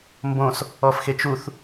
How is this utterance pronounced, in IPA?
m b õ s | ɔ f x e t͡ʃ u θ

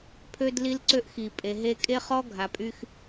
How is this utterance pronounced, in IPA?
pʰ ø˦ d l i˦ l ǀ ø˦ ʔ x i˨ pʼ e˨ ɦ e˦ kʼ e˦ χ ɔ˦ ɡʱ a˨ pʼ y˦ x

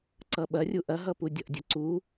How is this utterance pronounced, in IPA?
ǀ ʌ ɓ ɐ rʲ u ʔ ɐ ɦ ʌ p u dʲ ʌ ʔ dʲ ʌ ǀ u

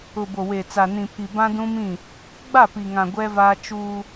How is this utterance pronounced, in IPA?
ʊ˨ b o˨ w e˨ t͡s a˨ n ĩ˨ pʰ i˨ b ã˦ d ũ˦ m ĩ˦˨ | ɡ͡b a˦˨ p i˨ ŋ ã˨ ɡʷ ɛ˦ v aː˦ t͡ʃ uː˦

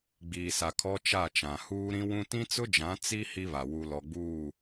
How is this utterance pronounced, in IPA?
ɡ͡b iː˨ s a˨ kʰ ɔ˦ t͡ʃ a˦˨ t͡ʃ ã˨ h uː˦ ɾ ĩ˦ w ũ˦ t ĩ˦ t͡s ʊ˦ d͡ʒ ã˨˦ t͡s i˦ h i˦ β a˨ w u˨ l ɔ˨ ɡ͡b uː˦˨

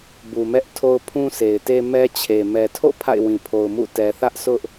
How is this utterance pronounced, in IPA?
b u˨ m ɛ˦ ʔ tʰ o˦ ʊ̯ pʰ ũ˦ s e˨ ɪ̯ t e˦ m ɛ˦ t͡ɕʰ e˨ m ɛ˨ tʰ o̰˦˨ pʰ a̰˦˨ ɪ̯ w ĩ˨ pʰ o˨ ʊ̯ m ṵ˦˨ t ɛ˨ θ ä˦ ʔ sʰ ʊ˦ ʔ

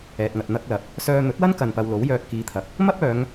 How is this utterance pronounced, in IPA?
ɛː˨ t̚ ŋ ɐ˨ t̚ n̪ ɐ˥ k̚ l ɐ˧ p̚ | s œː˧ n̪ ɵ˨˥ t̚ w ɐ˥ n k ɐ˨ n p ɐ˧ w l o˨˥ w j œː˧ t̚ k iː˨ t̪ʰ ɐ˨ k̚ | m ɐ˥ p̚ œː˨˧ ŋ

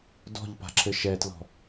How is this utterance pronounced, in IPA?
d ɔ̤ ʎ p a̤ ǁʰ ɘ ʃ ɛ t l ɔ̤

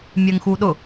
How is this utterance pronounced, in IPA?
mʲ ɜ ŋ x u ɗ ʊ

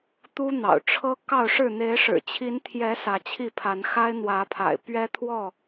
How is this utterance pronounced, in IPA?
t̪ u˦ n̪ ɑ̰˨˩ ʊ̯ ʈ͡ʂʰ ɤ˦ k ɑ˥˨ ʊ̯ ʂ ɻ̩˥˨ n̪ e˨˦ ɪ̯ ʂ ɻ̩˨˩ t͡ɕʰ i˨˦ n t̪ʰ j ɛ˨˦ s ä˨˦ t͡ɕʰ i˥˨ pʰ a˨˦ n x a˦ ɪ̯ n̪ w ä˨˦ pʰ a̰˨˩ ɪ̯ p ɥ ɛ˦ t̪ʰ w ɔ˥˨

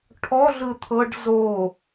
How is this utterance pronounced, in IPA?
ʈʰ ɔ ɮ ɯ t̪ʰ ɤ ɖ z o

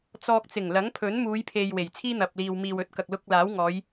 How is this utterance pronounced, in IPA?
t͡s ɔː˧ k̚ t͡s ɪ˨˩ ŋ l ɐ˨˥ ŋ pʰ ɵ˨˥ n m uː˨˧ j pʰ e˨ j w e˨˩ j t͡sʰ iː˥ n̪ ɐ˨ p̚ l iː˨ w m iː˨ w ɵ˨˥ t̚ k ɐ˨ k̚ l ʊ˧ k̚ l aː˨˥ w ŋ ɔː˨˧ j

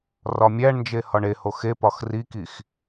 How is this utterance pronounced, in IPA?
r ɒ mʲ æ ɳ n d͡ʒ e h ɒ ɳ e h o x e p ɒ x r i k i x

